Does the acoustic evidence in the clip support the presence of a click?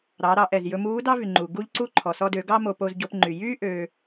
yes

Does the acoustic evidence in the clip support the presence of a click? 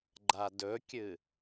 yes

